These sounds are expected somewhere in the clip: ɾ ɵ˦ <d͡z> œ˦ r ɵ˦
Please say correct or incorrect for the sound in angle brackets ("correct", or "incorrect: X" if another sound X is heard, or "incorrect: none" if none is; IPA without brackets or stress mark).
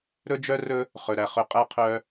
incorrect: d͡ʒ